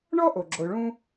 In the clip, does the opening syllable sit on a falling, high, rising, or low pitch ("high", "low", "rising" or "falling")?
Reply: high